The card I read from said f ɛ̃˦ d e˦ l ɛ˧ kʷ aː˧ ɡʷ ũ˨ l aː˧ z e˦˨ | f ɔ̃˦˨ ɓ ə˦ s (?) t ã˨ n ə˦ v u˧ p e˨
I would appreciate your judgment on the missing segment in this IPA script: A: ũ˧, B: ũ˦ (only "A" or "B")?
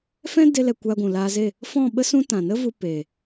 B